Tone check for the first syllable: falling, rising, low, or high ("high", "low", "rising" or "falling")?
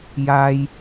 high